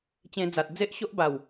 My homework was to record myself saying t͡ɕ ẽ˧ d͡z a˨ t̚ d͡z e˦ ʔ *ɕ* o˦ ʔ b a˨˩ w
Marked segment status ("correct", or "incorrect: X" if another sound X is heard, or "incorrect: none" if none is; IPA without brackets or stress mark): correct